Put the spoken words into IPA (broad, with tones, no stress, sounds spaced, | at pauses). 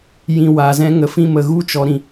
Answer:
j ĩ˨ w a˨ z ɛ̃˦ ŋ ə˨ f ĩ˧ m ə˨ ɣ u˦ t͡ʃ ɔ˨ ɾ ĩ˨